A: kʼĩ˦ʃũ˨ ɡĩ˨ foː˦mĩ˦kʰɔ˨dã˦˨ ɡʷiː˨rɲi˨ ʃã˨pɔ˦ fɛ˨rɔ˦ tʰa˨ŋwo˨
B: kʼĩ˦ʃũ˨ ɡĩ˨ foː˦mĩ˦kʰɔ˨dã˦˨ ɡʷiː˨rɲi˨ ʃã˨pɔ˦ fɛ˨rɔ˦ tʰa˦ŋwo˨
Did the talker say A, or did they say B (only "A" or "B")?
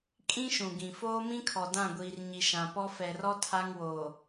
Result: B